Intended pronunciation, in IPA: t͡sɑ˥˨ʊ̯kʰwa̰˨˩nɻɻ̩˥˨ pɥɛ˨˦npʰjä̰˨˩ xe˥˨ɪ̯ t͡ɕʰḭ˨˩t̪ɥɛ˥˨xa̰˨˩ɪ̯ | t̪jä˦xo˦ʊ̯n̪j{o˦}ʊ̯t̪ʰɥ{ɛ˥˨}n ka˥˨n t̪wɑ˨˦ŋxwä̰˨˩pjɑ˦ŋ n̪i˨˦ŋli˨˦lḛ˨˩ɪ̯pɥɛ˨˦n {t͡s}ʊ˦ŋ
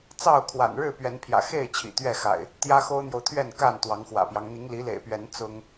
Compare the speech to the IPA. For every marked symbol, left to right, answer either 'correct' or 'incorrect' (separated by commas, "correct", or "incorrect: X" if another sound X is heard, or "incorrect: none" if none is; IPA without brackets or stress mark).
incorrect: o˨, correct, correct